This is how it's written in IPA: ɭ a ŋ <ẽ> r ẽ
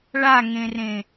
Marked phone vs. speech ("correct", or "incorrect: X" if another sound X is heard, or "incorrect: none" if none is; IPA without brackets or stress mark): correct